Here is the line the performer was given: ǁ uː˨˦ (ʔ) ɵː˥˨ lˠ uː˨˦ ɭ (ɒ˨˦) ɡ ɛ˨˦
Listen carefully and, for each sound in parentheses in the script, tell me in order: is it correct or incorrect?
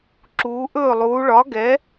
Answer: correct, correct

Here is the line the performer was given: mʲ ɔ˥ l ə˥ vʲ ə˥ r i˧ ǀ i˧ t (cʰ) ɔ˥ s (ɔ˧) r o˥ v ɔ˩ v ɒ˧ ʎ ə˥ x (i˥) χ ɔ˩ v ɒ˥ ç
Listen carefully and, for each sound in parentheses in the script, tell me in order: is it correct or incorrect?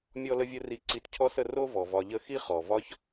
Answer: correct, incorrect, correct

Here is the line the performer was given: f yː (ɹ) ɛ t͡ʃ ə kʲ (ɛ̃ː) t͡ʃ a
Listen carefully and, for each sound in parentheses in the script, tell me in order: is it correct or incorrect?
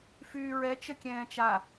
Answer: correct, correct

